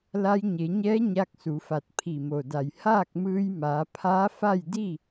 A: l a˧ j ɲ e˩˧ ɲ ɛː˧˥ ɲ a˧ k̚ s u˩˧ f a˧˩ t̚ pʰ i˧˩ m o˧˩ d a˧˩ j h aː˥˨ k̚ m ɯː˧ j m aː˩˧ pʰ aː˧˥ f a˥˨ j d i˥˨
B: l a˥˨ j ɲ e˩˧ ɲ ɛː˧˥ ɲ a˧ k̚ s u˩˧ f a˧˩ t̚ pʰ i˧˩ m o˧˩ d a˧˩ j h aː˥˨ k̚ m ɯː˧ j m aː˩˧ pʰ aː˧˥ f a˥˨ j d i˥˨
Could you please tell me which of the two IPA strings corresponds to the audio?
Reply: A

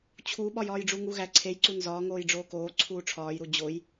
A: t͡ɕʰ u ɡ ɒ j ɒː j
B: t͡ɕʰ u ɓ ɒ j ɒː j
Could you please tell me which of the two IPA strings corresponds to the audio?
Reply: B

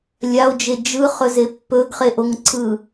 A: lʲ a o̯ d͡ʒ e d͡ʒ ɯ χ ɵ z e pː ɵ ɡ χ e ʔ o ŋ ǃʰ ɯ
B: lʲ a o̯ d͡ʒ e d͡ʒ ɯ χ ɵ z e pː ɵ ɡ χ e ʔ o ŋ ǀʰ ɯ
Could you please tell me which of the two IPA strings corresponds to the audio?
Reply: B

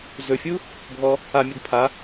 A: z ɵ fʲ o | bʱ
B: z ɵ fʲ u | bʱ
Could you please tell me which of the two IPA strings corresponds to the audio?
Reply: B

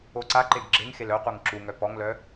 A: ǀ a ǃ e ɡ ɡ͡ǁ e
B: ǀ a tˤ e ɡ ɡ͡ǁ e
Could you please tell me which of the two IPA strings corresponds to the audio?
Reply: A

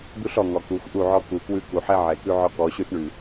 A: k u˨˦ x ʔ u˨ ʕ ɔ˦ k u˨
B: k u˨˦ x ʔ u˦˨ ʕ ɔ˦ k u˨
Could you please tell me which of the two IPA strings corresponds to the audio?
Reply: B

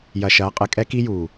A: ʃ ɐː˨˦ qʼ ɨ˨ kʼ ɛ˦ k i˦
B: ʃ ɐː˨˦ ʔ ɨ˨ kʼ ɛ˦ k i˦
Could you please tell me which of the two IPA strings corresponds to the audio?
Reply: A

